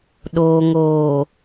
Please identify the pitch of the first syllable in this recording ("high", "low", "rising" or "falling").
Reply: low